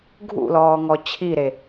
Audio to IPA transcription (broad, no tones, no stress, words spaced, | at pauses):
ɡʱṵlɔːŋɔ t͡ɕʰiɾe